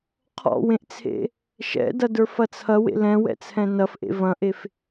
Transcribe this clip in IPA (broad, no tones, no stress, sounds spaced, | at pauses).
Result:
qʰ ɔ̰ w ẽ ʔ t͡sʰ ḛ | ʃ ɛ̰ d ɐ d ə˞ f ɐ t͡sʰ ɐ w ḛ l ɛ̃ w ɛ̰ t͡sʰ ɛ̃ n ɐ f ʔ ḛ v ɐ̃ ʔ e f